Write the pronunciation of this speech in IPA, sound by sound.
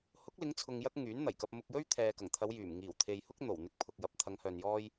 h ʊ˨˥ k̚ l ɪ˨˧ ŋ t͡sʰ ʊ˧ ŋ j ɐ˥ k̚ ŋ yː˨˥ n n̪ ɐ˨˩ j k ɐ˧ p̚ m ʊ˧ k̚ j ɵ˥ ɥ t̪ʰ ɛː˨ k ɐ˨˩ ŋ t̪ʰ ɐ˨˧ w j yː˨˩ m ŋ iː˨˩ w t̪ʰ e˨ j h ʊ˥ k̚ n̪ o˨˩ w n̪ ɪ˧ k̚ pʰ ʊ˨ k̚ j ɐ˨˥ p̚ t̪ʰ ɐ˨˧ ŋ h œː˨ n j ɔː˧ j

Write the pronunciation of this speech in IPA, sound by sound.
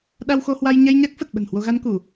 ɗ a˧ w x o˧ h w a˧ j ɲ ɛ˧ j ɲ a˦˥ k̚ f ə˨˩ t̚ ɓ ə̤˨˩ n h w o˧ ɣ a˧ n k u˧˩˨

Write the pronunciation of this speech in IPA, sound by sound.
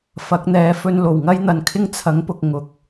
f ɐ˨˥ k̚ n̪ ɛː˨˥ f ɵ˧ n l o˨˩ w ŋ ɐ˥ j n̪ ɐ˨˧ n kʰ ɪ˥ ŋ t͡sʰ ɐ˨˥ ŋ p ʊ˨ k̚ ŋ ʊ˨˥ k̚

